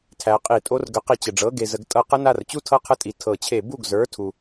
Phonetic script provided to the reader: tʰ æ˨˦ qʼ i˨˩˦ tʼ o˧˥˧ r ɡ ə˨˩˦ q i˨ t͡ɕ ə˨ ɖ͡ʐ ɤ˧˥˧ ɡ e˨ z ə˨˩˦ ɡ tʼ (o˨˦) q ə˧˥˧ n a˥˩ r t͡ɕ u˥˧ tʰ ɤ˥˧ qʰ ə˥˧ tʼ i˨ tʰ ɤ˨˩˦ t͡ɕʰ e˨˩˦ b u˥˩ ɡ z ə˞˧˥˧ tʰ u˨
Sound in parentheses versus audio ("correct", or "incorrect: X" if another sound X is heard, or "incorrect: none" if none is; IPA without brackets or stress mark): incorrect: ɤ˨˦